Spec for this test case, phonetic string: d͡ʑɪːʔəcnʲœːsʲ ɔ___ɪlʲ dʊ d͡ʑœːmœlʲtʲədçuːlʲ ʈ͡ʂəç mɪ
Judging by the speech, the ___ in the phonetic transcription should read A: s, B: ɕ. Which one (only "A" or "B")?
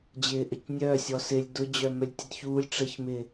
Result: A